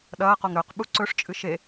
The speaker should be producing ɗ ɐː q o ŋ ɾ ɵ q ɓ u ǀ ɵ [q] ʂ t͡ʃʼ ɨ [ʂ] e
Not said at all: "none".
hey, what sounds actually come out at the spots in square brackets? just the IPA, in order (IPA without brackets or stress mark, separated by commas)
none, ʃ